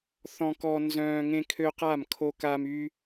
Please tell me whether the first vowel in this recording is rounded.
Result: yes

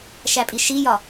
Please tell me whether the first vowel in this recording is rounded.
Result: no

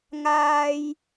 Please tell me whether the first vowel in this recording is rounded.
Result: no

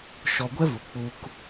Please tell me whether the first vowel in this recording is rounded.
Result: yes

